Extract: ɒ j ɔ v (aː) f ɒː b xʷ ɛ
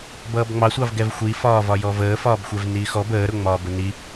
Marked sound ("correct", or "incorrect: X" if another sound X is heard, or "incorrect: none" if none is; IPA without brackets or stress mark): incorrect: əː